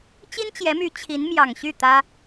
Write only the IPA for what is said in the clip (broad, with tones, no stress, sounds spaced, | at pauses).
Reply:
t͡ɕ i˥ n t͡ɕ j ɛ˧˥ m y˧˥ t͡ɕʰ i˧˥ n m j ɑ˨˩ ŋ ɕ y˥˩ t̪ ä˥